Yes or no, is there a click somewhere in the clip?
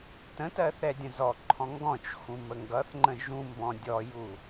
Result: yes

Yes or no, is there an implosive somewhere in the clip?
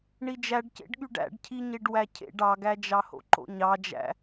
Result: yes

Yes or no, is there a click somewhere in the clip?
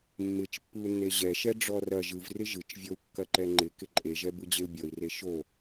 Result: yes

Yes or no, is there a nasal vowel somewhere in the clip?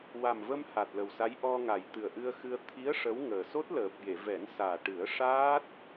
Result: no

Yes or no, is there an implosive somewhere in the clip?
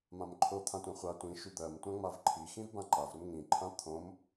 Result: no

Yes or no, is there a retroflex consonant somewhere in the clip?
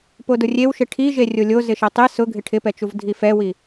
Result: yes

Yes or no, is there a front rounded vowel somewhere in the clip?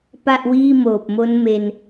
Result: no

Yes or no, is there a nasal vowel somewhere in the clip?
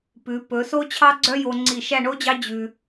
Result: no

